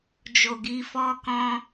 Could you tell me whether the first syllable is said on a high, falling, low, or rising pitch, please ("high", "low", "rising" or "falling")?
low